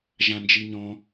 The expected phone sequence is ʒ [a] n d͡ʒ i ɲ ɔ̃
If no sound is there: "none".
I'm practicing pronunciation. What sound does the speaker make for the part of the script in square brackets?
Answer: ã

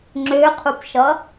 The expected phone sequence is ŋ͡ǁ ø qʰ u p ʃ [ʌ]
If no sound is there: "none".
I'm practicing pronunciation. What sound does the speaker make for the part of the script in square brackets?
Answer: ʌ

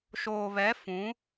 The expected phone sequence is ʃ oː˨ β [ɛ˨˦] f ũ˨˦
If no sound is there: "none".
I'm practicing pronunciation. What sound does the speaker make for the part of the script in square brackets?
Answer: ɛ˨˦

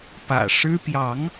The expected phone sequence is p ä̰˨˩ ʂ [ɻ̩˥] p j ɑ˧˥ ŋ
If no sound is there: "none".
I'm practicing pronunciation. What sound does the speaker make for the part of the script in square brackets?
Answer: ɻ̩˥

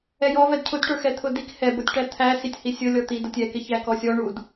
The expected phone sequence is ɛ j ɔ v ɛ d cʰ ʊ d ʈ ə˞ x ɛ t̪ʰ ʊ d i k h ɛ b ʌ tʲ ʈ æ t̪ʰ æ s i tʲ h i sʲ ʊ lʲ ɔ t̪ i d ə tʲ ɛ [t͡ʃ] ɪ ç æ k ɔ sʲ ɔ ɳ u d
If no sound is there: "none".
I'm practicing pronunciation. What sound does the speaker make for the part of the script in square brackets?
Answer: k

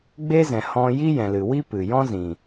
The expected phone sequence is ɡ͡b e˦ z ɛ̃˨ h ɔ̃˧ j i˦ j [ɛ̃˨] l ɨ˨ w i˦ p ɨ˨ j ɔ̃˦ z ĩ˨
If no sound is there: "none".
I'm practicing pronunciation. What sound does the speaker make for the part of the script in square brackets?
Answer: ɛ̃˨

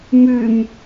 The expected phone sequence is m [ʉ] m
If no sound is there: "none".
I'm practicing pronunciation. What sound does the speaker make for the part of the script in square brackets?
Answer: ʉ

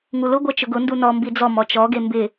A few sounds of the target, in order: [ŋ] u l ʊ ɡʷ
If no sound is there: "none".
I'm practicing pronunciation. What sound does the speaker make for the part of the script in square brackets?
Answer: ŋ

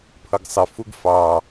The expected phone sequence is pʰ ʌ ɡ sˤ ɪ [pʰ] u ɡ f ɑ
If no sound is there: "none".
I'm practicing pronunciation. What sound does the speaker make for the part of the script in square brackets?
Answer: f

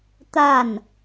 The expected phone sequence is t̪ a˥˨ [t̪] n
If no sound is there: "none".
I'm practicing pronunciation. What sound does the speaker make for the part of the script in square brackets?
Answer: none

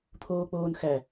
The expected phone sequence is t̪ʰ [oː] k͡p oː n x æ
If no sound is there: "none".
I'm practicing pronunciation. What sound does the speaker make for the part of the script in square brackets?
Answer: oː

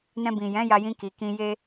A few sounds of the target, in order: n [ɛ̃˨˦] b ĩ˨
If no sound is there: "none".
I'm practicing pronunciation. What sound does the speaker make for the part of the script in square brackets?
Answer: ɛ̃˧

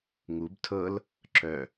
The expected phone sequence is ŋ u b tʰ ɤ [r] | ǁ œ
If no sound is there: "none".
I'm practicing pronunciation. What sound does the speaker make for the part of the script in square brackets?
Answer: l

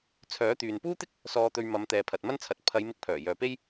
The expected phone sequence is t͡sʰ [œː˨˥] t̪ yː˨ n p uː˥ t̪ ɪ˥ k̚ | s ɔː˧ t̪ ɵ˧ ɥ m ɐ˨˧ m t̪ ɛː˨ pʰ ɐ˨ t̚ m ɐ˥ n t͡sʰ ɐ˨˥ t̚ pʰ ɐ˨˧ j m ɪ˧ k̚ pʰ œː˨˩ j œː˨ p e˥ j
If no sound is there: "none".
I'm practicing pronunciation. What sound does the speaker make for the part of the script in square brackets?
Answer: œː˨˥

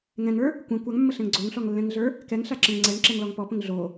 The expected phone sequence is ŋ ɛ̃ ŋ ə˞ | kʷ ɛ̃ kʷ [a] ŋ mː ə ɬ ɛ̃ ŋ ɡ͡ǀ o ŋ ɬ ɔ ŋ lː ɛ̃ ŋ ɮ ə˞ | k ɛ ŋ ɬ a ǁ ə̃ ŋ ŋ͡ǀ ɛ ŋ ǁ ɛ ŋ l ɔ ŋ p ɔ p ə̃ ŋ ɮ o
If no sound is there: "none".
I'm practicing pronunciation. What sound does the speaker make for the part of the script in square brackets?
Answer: a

